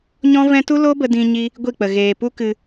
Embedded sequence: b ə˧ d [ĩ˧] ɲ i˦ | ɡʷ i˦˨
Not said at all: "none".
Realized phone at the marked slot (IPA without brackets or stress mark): ĩ˧